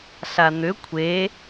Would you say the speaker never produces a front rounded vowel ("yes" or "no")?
no